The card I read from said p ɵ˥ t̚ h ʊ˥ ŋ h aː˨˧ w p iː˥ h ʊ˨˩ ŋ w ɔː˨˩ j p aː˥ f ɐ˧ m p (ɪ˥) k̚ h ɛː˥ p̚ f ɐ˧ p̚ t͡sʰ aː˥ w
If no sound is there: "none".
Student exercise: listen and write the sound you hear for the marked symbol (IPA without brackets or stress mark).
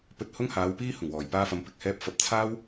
ɪ˨˥